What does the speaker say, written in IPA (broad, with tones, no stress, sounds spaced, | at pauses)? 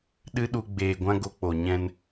ɗ ɨ˦ ɗ u˧ ɡ͡b eː˨ ɡʷ ã˧ ɡ o˧ k͡p o˨ ɲ ɛ̃˧ n